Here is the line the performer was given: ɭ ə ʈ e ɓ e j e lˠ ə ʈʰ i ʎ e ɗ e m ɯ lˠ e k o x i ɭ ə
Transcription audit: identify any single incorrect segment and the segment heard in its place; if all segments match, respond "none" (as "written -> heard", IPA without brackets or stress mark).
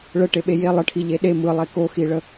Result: none